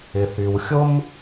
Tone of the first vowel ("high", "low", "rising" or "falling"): low